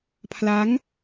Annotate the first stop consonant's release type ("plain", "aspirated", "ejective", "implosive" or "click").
aspirated